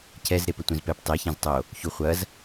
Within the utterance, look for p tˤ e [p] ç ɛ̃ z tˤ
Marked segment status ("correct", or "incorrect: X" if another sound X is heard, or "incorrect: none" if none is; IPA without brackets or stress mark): incorrect: none